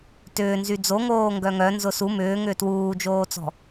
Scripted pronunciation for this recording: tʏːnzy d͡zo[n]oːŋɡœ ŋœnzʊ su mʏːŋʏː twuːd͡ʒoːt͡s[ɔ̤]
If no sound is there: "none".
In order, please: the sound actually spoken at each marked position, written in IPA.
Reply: ŋ, ɔ̤

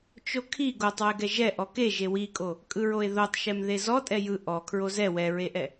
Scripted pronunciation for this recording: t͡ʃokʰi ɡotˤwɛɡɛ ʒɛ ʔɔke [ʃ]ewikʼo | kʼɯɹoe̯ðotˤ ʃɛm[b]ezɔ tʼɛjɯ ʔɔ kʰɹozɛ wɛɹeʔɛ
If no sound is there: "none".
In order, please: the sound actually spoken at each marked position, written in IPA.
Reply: ʒ, ð

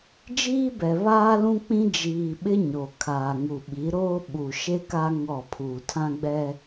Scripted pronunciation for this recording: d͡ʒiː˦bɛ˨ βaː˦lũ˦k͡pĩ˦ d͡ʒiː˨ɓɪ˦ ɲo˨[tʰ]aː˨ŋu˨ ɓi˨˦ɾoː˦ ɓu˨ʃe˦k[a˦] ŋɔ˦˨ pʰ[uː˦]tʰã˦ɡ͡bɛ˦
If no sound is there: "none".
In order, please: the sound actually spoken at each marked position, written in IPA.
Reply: kʰ, a˦, uː˨

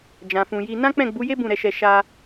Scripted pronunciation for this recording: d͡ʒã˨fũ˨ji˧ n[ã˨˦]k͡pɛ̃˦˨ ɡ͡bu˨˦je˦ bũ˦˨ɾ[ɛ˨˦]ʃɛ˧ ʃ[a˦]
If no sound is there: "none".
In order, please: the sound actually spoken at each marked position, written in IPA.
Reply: ã˦, ɛ˧, a˦

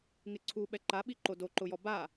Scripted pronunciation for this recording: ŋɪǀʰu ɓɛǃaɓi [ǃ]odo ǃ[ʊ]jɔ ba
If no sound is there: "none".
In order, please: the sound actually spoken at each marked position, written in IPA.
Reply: ǃ, ʊ

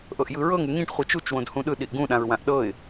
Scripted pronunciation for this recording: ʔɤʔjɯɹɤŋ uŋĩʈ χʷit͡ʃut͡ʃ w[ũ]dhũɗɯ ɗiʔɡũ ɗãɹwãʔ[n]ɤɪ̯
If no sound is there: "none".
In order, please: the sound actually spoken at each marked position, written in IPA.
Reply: õ, ɗ

